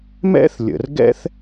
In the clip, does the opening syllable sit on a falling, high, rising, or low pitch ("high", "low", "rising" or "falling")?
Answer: high